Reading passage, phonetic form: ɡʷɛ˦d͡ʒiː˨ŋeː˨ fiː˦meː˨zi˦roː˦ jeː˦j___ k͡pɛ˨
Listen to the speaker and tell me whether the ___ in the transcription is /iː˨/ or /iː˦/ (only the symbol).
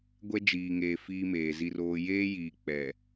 iː˨